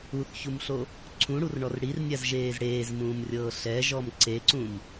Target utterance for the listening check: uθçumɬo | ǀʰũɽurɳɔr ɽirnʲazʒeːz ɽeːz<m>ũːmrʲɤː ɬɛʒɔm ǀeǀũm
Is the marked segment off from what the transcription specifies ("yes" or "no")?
no